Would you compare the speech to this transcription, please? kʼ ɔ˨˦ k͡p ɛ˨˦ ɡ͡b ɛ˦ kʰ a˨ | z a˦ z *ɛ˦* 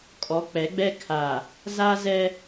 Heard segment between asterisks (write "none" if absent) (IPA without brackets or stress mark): ɛ˦